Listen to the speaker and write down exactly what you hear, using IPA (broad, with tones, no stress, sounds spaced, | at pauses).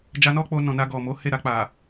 d͡ʒ a˧ n ɔ˦ k͡p o˧ n ɔ̃˨ n a˧ ɡ ɔ˨ m o˨˦ h e˦˨ ɾ a˧ k͡p a˨